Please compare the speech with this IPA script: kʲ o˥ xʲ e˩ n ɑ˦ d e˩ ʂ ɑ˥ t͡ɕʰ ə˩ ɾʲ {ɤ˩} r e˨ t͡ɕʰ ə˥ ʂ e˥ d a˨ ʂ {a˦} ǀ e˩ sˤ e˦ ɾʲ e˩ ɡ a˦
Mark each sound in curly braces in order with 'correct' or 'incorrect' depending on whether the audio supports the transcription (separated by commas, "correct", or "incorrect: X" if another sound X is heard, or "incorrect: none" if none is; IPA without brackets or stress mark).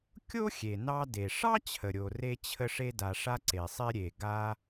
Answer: incorrect: o˩, correct